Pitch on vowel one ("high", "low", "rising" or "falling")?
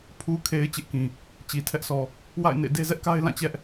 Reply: low